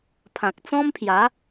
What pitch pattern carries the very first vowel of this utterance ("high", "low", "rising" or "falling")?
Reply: low